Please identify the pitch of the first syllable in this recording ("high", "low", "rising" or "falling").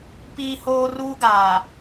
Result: high